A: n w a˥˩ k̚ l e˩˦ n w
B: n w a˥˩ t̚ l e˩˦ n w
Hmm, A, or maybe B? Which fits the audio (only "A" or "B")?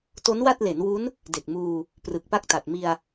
B